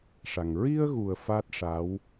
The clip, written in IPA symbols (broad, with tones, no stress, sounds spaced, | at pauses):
ʂ a˨˩ ŋ ɹ i˧ ə̯ ɣ u˨˩ ə̯ f a˦˥ t̚ ʂ a˧˥ w